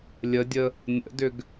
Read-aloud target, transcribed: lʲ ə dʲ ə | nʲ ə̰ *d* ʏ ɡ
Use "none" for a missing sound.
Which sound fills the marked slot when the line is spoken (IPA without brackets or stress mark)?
d